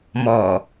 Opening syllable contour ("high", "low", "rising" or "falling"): low